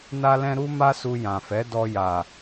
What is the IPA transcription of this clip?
na˦lɛ̃˦ ɾu˦ma˦su˧ jã˨fɛ˨˦ dɔ˧ ja˨

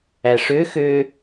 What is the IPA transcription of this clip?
æʂø xø

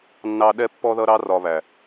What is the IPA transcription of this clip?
nːɑ˦ ɗɛ˦pːɔ˦ðʌ˦ɾɑ˦ rɒ˧βæ˨

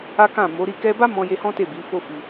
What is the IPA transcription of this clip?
a˦kã˦˨ mo˨˦ɾi˦˨ kɛ˧ba˦ mɔ̃˧je˧hɔ̃˦ te˦˨bi˨˦fo˦fi˧

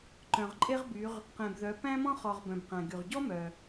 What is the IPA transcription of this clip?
ǃœ̃˩ʁǃʼe˦ʁby˩˧ʁ | qẽ˩bðœ˩˧ pæ̃˦mɔ̃˦χɔ˩ʁ bœ̃˩bqæ̃˩ ɡy˩ʁɟɔ˦mœ˩

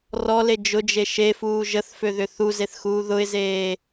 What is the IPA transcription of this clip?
rɔle d͡ʒʊd͡ʒe ʃefuː ʒəθføðʏ θuzeθxuː ðʊɪ̯zeː

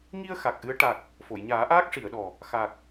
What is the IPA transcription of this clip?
ŋi˧ə̯ xa˨˩k̚ʔɨ˧˥ə̯ ʈa˨˩k̚ | fo˨˩˨j ɲaː˨˩˦ʔaː˦˥k̚ʂi˨˩˨ə̯ɗɔ˨˩ | xa˨˩k̚

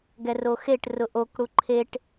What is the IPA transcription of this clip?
ɡɛroxeʈrʊ ʔokɽu ǃʰeʈ

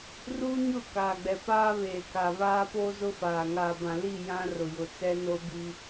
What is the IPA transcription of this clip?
ruː˦ɲʊ˦˨ kaː˨ɡ͡bɛ˨paː˦ βeː˨ka˨ βaː˦poː˦zʊ˦faː˨ ŋaː˨bã˨ li˦˨ jã˦ rʊ˨jʊ˨t͡sɛ˦no˦ bi˦

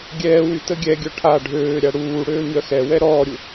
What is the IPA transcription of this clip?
ɡʲɛːwy təɡʲɛɡʲœ ʈʰa ɖʱøːɾʲa ɽuː ɽøːɲœxɛwɛ ɾɔːɾʲu

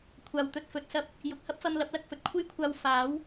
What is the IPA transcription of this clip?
kʷʰaː˨wt̪ɵ˧t̚fɵ˧t̚sɐ˥p̚ | jʊ˨k̚hɐ˥p̚fɐ˧m lɐ˨˥p̚lɐ˨k̚fɵ˧t̚ kʷʰe˥jkʷʰaː˧w faː˨˥w

